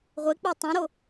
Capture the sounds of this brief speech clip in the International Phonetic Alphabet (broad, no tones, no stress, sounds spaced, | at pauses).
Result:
ʁʷ e k͡p ɜ tˤ õ ɾ o